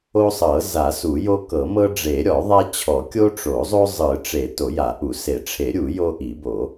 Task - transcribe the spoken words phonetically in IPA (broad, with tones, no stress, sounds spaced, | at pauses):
o˦ sˤ ɤ˨˩˦ z a˨˩˦ s u˨˩˦ j o˦ k ɤ˨˩˦ m ɤ˦ ɖ͡ʐ e˨˩˦ ɾʲ ɔ˨˩˦ ðˤ a˦ t͡ɕʰ ɔ˨˩˦ kʲ o˦ ʈ͡ʂ o˨˩˦ zˤ o˦ zˤ ɯ˨˩˦ ʈ͡ʂ e˨˩˦ t o˨˩˦ j a˨˩˦ ʔ u˨˩˦ s e˨˩˦ ʈ͡ʂʰ e˨˩˦ ɾʲ u˨˩˦ j o˦ ʔ i˨˩˦ b o˨˩˦